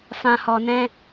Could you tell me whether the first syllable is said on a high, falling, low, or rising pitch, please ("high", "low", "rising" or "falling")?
low